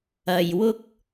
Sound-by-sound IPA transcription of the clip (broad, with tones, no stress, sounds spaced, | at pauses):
ɐ˧ j w ʊ˥ k̚